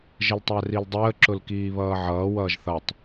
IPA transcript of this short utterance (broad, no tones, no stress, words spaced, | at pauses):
ʒəltˤærildˤəː ǁʊlkiːβʌːʕʌː wʌːʒθʌtˤ